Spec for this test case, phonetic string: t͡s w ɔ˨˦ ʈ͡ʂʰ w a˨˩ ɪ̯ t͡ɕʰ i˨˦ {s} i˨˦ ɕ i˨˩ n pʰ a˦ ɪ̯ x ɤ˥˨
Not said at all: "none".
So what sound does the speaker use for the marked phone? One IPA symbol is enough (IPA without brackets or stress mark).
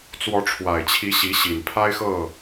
ɕ